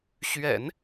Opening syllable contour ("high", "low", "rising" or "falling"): low